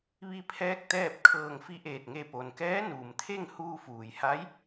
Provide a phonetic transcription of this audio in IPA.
ʋ i˧ pʰ ɛː˧ k̚ t̪ ɛː˥˨ p̚ kʰ ɤː˧˩ ŋ f i˧˥ ʔ eː˧˩ t̚ ŋ e˧˩ p o˩ n k ɛː˧˥ n uː˩ m t̪ʰ e˥˨ ŋ h uː˧ f uː˩ j h a˧˥ j

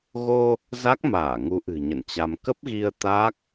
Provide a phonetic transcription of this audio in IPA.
ɣ o˧ | z a˦˥ k̚ m aː˧˩ ŋ u˨˦ ʔ ɨ̤˨˩ ɲ ə̰˧˨ n t͡ɕ a˧ m k ə˦˥ p̚ ɣ i˧ ə̯ t̪ a˦˥ k̚

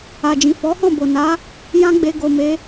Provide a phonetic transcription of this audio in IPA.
a˨ d͡ʒ ĩ˨ f ɔ˨˦ h ɔ̃˦˨ b o˨ n a˨˦ | j ã˦ ɡ͡b e˧ ɡ o˨ m e˨˦

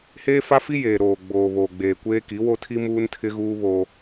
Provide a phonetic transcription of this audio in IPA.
h eː˦ f a˦ f i˦ j eː˨ ɾ oː˨ ɡ͡b oː˨ β oː˨ ɡ͡b eː˨ kʷ eː˦ k i˨˦ w o˦ tʰ i˦ m uː˦ n tʰ ɪ˦ ɣ uː˦ β oː˦

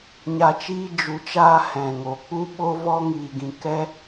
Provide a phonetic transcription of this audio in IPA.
ɲ a˨ t͡ʃ iː˧ d͡ʒ u˨ t͡ʃ aː˧ h ɛ̃˨ ŋ o˨ k͡p u˦ ɓ o˦ v ɔ˦ ŋ iː˧ ɡ ĩ˧ k ɛ˦

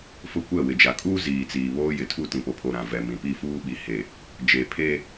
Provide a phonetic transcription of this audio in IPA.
f ʊ˦ kʷ ɛ˦˨ w ɪ˨ d͡ʒ a˨ kʼ uː˦ z iː˨ t͡s iː˨ β oː˦ j ɪ˨ tʰ u˦˨ t ĩ˨ p o˨ pʰ o˨ ɾ ã˨ v ɛ˨ m ĩ˨ p i˦˨ f uː˦ ɓ i˨ h e˨ | d͡ʒ e˨ pʰ e˦

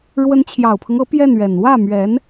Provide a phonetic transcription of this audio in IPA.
ɻ w ə˧˥ n t͡ɕʰ j ɑ˨˩ ʊ̯ pʰ ɤ˦ ŋ ɤ˧˥ p j ɛ˥˩ n ɥ ɛ˨˩ n w ä˥˩ m ɥ ɛ˧˥ n

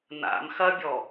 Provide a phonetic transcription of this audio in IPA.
n a̰ m x ɐ bʲ ɔ

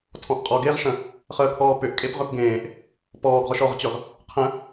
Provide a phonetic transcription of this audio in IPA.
tʰ ɔ̃ ʔ qʼ ɔ ɡ e ʁ ʂ ə̃ | χ əː kʰ ɔː p ʏ ʔ kʼ e p ʁ ʏ p ɡ ẽː ʔ | p ɔː ɡ ʁ ɔ ʃ ɔ ʁ t͡ɕ ʏ ʁ | qʰ ə̃

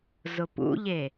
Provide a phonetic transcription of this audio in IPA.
z ʊ p ṵ ʎ e

